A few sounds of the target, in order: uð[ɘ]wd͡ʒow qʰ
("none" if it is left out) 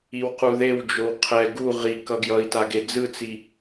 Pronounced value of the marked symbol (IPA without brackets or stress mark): e